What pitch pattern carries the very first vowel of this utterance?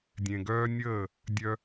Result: low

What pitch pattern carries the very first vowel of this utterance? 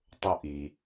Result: high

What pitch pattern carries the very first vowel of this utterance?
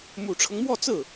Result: low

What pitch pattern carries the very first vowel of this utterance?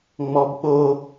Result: high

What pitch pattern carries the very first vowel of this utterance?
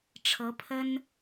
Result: rising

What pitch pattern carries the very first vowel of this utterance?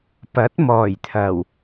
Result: rising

